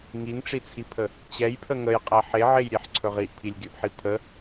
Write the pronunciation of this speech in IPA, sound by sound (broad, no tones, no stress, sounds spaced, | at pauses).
ŋ i ŋ ʈ͡ʂ i t͡sʰ i pʰ ə | t͡ɕ ɛ j pʰ ə ŋ ə j qʼ ɛ ħ e ʕ e j ɾʲ e ħ ǀʰ ɵ ʁ i ʔ pʰ i lʲ ɡʲ ɵ ʔ ħ i pʰ ə